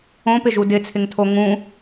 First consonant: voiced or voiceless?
voiceless